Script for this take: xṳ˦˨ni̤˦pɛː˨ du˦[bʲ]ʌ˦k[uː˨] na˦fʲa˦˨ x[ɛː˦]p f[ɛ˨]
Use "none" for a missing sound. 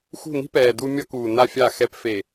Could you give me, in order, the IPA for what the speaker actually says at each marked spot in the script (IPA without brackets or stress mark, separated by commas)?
mʲ, uː˨, ɛ˦, e˨